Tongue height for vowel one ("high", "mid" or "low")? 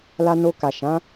low